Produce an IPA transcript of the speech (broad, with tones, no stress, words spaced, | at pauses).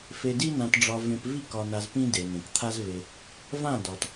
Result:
fe˧di˦nã˧tɖ͡ʐɒ˧ vẽ˧pvi˦ kɒ˧na˧zpĩ˦ de˨nẽ˨kt̪ʰa˦zve˧ | vã˦˨dɒ˨t